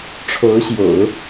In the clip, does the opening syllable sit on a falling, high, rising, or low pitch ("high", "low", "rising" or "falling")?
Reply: rising